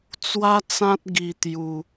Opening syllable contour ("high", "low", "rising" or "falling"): high